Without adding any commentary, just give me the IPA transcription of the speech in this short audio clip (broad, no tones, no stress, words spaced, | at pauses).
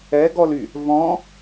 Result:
ɛɡɔly | vɔ̃